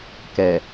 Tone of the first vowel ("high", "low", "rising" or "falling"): low